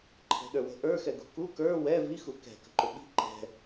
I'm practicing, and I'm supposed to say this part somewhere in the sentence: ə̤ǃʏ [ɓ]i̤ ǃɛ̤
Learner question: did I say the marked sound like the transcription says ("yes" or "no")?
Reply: yes